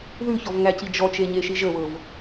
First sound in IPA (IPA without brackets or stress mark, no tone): ð